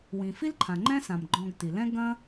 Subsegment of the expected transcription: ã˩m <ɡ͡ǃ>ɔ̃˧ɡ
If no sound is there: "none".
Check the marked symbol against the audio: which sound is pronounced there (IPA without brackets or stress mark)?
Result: ɡ͡ǃ